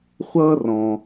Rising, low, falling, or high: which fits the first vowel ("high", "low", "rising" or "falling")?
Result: high